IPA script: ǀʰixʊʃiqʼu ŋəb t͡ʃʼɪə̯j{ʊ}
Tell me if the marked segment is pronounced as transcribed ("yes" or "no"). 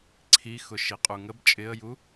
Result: no